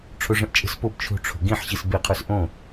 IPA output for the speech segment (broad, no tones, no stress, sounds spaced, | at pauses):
ʈ͡ʂʰ o ʐ ə̃ ʔ t͡ʃʼ ə̤ s p o b t͡ʃʰ o̤ ʈ͡ʂʰ o̤ ɡ ĩ ħ ɕ i s b e qʰ ə˞ s ʔ õ